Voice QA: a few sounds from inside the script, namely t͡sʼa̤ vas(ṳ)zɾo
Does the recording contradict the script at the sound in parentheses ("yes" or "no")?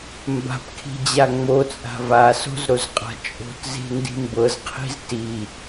yes